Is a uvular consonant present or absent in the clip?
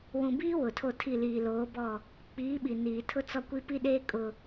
absent